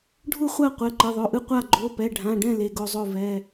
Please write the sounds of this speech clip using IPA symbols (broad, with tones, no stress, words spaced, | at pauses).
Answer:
ɖʱu˥˩χʷa˥˩qʷɛ˩˧˩ ǃɯ˩˧˩ðˤo˩˧˩ʔɯ˥˩ qʷa˥˩ ɡ͡ǃo˩˧˩pɛ˩˧˩ɖʱã˩˧˩ɖɛ̃˥˩ le˩˧˩ɡo˥˩zˤo˥˩ vɛ˩˧˩